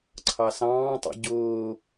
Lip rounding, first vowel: unrounded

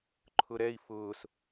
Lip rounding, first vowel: rounded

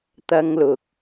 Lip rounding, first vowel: unrounded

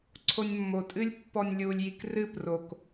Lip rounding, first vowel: rounded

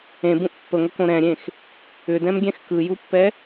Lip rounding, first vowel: unrounded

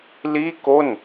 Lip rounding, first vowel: unrounded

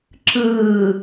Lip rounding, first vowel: unrounded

